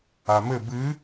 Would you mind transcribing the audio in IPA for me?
a m ɘ b ɨ

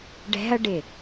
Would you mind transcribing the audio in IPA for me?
ɖ ɛ̤ ɐ̯ ɖ ɪ

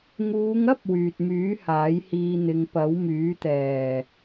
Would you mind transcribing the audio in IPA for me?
ŋ uː˨˧ ŋ ɐ˥ p̚ w yː˨ t̚ m yː˨˥ h aː˨˥ j h iː˧ n̪ ɪ˨˧ ŋ p ɐ˨˥ w m yː˨˥ t̪ ɛː˨˩

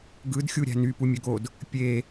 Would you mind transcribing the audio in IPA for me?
ɡ ɯ d xʲ u ɾʲ æ̤ n y p u mʲ ø ɡ o d | pʲ e

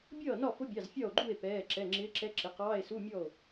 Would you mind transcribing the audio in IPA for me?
bʲ ʌː˥˩ n ɒ˥˩ f ʊ˧˥ bʲ ɑ˩˧˩ z fʲ ɒ˥˩ o̯ ɡ͡ǃ u˥˩ e̯ p ɛː˩˧˩ ǁ ɛ˩˧˩ ŋ͡ǁ ɪː˧˥ ǁ ɛ˧˥ ǁ ɪ˩˥ q ɑː˧˥˧ e̯ s u˧˥˧ mʲ ɔ˥˩ o̯

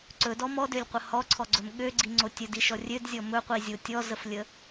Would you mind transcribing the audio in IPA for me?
ǀ ɵ d ɔ m ɔ d ø lʲ qʷ ə h ɔ ǀʰ ɔ ɡ͡ǀ ɵ m ɠ ø ɡ͡ǀ i ŋ͡ǀ o tʲ ɵ d i ʃ ɔ rʲ ø d zʲ ɔ m ɵ qʷ i zʲ o tʲ ɔ z ə f lʲ ə

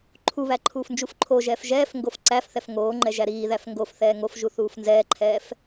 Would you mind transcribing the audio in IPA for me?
ǃʰ u β æ ǃʰ uː f n d͡ʒ u f ǃʰ o ʒ ɛː f ʒ ɛː f ŋ ɡ o f ǀ æ f θ ɛ f ŋ oː ŋ͡ǃ ɛ ʒ æ ɾ iː ð æ f ŋ ɡ o f θ ɛː ŋ o f ʒ u θ uː f n z ɛː ǃʰ ɛː f

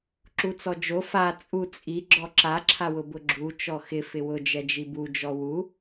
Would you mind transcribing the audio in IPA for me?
ǁ u t͡s ɔ d͡ʒ o f a t͡sʼ u t͡sʼ i ɡ͡ǁ ɔ ǁ a ǁʰ a w ʊ b ʊ ɡ͡ǁ u t͡ʃ ɔ x ɪ f ɪ w ʊ d͡ʒ ɛ d͡ʒ i b u d͡ʒ ɔ w u

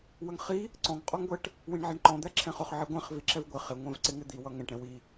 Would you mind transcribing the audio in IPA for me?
w ə ŋ χ i | ǀ ɔ̃ ŋ qʼ ɔ ŋ ɡʷ ɛ ʈ | w ĩ ɳ ʕ ɛ ɳ ǃ ɔ̃ d̪ æ ǁʰ ɛ̃ χ ʊ χ ʕ i ɡʷ ɛ̃ χ v i ǁ ɛ v ɡʷ ɪ χ ɪ ŋʷ ɛ̃ v ǀ ɪ ŋ ɪ d̪ i w ʌ ŋ ɛ̃ ʈ ɾ ɛ̃ w i

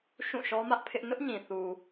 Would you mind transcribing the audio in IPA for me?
ʃ ũ˦˨ ʃ ɔ˦ m ä˦ ʔ pʰ ɪ˦ ʔ n ʊ˦ ʔ ɲ ĩ˨ θ u˨

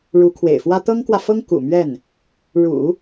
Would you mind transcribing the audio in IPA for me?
ɻ u˧˥ kʰ w ḛ˨˩ ɪ̯ f w ä˥ t̪ ɤ˥ ŋ k w ä˨ f ɤ˥ ŋ k ṵ˨˩ m ɥ ɛ˥˩ n | ɻ ṵ˨˩˦

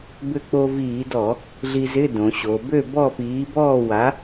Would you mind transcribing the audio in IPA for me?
b ʏ˧ k͡p o˧ v iː˧˩˧ d ɔ˧˩˧ | ɮ i˧ z ɪ˧˥˧ d õ˩˧ ɕ o˩˧ b ø˥˨ b ɔ˥˨ p iː˨˥ b ɔː˥˨ w a˨˥

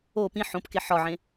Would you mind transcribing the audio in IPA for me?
o p ĩ ħ õ p k e ħ ɒ ʕ ẽ

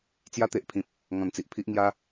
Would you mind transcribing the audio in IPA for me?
t͡s j a˦ t̪ e˨ ʔ pʰ ĩ˨ p̚ | ŋ ɔ̃˨˩ n t͡s i˨ ʔ pʰ i˦ ʔ ŋ j a˦

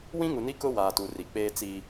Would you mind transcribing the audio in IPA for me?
w ĩ˦ ŋ u˨ n i˦ k ʊ˦ w aː˨ t u˨ r i˨ k͡p eː˦ t͡s i˦

